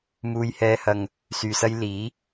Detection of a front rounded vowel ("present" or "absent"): present